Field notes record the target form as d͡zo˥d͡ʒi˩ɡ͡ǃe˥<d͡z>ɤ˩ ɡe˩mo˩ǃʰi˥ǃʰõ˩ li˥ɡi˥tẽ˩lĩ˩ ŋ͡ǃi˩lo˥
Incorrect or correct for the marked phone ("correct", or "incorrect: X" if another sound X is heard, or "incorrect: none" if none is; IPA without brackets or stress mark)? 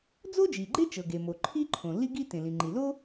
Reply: incorrect: t͡ʃ